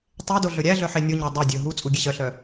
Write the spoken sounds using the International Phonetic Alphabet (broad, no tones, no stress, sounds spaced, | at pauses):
tˤ e d o ɮ ɵ ɾʲ æ ɮ œ ħ e nʲ o ɲ æ dˤ o dʲ ɵ ɦ u t͡sʼ u ɡʲ e ɕ œ ɬ œ